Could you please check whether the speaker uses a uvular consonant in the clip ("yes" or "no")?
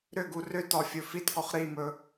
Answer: yes